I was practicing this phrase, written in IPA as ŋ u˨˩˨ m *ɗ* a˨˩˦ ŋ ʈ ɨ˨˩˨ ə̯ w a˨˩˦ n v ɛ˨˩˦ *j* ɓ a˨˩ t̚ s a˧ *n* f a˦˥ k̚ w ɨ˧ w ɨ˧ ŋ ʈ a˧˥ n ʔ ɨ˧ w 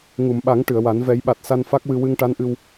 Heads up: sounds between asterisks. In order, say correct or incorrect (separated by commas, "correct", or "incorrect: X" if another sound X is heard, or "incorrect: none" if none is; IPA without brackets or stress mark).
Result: incorrect: ɓ, correct, correct